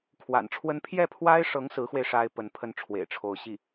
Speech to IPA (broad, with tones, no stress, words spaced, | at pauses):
kʰwa̰˨˩nʈ͡ʂʰwə˥n pʰjɛ˥˩pʰwa˥ɪ̯ʂɤ˧˥ŋ sɹ̩˧˥xwe˧ɪ̯ ʂa˥ɪ̯ pə˧˥npʰə˥˩nʈ͡ʂʰwḛ˨˩ɪ̯ʈ͡ʂʰo˧˥ʊ̯ ɕi˥˩